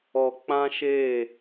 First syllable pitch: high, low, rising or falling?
low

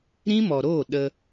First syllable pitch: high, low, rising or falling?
high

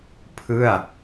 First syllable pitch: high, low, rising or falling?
falling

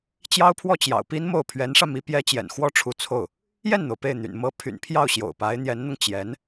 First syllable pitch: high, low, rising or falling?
high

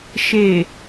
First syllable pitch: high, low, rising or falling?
low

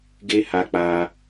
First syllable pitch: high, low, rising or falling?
high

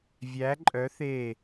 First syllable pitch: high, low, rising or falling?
rising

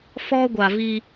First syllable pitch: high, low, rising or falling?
high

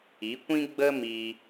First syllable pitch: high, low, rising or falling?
rising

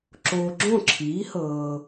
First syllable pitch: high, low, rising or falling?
low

